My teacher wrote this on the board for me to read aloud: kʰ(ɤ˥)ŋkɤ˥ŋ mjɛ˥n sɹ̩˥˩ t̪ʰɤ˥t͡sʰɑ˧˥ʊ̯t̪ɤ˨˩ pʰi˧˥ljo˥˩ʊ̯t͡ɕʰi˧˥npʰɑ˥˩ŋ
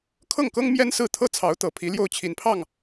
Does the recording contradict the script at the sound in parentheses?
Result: yes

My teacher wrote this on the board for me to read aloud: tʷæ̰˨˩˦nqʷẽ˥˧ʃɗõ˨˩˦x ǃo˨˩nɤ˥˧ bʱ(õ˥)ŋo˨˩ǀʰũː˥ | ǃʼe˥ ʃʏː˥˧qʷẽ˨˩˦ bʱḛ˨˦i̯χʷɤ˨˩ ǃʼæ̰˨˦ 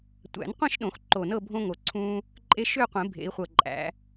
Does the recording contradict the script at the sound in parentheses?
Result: no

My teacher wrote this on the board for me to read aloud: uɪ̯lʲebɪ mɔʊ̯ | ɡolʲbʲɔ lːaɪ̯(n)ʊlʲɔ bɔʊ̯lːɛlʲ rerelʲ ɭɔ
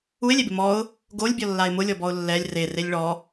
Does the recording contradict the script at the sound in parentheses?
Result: yes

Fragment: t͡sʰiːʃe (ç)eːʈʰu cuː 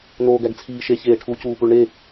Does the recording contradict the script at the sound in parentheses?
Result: no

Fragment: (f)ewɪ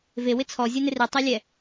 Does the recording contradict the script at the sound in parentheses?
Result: yes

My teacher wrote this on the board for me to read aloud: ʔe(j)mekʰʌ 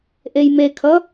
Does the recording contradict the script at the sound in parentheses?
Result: no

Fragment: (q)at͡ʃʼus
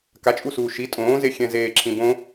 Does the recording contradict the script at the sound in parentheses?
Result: yes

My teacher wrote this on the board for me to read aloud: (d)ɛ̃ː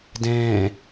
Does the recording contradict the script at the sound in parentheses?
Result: no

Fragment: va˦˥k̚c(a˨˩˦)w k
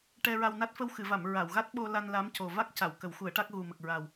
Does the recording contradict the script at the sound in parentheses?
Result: yes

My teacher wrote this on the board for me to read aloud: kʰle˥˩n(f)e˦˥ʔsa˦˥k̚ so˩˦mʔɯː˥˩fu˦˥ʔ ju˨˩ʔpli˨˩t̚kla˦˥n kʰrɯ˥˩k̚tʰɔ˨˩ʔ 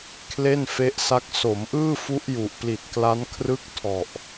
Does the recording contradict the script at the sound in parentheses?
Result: no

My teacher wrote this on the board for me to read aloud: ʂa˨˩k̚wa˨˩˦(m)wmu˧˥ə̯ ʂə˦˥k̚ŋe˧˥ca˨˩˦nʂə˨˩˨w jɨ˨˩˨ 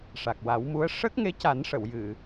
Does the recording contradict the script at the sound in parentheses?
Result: yes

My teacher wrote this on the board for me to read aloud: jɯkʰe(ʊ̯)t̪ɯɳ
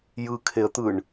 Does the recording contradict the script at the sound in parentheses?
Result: yes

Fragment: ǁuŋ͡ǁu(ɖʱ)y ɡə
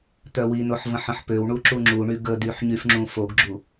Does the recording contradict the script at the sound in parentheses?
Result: yes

